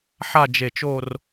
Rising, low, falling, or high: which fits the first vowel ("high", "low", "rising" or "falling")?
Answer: falling